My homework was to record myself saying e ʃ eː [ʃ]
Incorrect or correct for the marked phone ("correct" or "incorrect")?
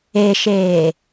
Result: incorrect